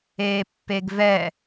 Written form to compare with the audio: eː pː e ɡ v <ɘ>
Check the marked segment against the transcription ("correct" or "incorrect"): incorrect